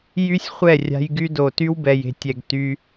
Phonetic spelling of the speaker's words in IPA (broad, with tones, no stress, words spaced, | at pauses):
jy˦sʲχʷɛ˦˨rʲa̤˧j ɡy˧do˨ty˦wbɛ˨j e̤˨tʲɛ˨ɡ ty˧